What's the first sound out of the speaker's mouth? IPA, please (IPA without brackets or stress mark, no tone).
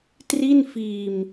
t